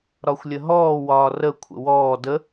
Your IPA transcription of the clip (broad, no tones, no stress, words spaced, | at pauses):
ɾɒxʷlʲəɦɔː wɒːrə kʷʰə̰wɔː də